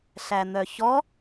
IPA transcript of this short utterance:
ɬ æ n̪ œ ç ɔ

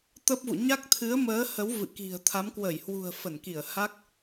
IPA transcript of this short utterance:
t̪ ə˦˥ p̚ v ṵ˧˨ ɲ a˦˥ k̚ t̪ʰ ɨ˨˦ ə̯ m əː˨˦ h ə˨˦ w v ɨ̰˧˨ k i̤˨˩ ə̯ t̪ʰ a˨˦ m k w ə˧˩ j h w ṳ˨˩ ə̯ f ə˧˩ n k i˧˩ ə̯ h a˦˥ k̚

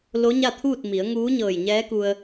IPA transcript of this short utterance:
l o˧˥ ɲ a˥˨ t̪ʰ uː˥˨ t̚ m i˩˧ ə̯ ŋ uː˧˥ ɲ ɤː˧˩ j ɲ ɛː˧˥ k u˧ ə̯

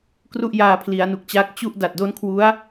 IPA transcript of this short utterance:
k r u˥˩ ʔ j aː˧ pʰ l i˩˦ a̯ n u˨˩ k̚ t͡ɕ a˦˥ k̚ t͡ɕ u˥˩ ʔ d a˨˩ t̚ d o˦˥ n kʰ w u˦˥ a̯

